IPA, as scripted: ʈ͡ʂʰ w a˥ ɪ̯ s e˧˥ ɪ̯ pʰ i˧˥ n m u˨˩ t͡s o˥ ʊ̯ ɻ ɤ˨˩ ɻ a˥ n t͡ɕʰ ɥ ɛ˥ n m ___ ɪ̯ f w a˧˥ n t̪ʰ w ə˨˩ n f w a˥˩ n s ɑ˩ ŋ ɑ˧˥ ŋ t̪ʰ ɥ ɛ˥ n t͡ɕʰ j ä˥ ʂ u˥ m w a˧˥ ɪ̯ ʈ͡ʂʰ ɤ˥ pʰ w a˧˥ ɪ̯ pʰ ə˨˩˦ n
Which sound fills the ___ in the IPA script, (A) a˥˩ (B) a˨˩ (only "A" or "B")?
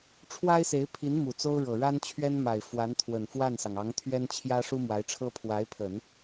B